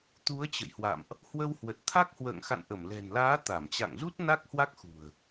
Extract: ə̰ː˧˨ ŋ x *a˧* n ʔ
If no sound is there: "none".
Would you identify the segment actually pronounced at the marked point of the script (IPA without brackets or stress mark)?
a̰˧˨